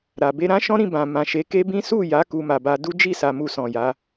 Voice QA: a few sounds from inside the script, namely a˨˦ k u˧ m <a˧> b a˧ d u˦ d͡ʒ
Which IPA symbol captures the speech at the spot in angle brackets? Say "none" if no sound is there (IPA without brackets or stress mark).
a˨